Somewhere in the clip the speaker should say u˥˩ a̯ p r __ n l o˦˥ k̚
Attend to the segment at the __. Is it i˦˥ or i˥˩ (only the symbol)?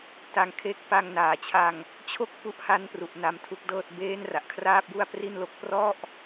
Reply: i˥˩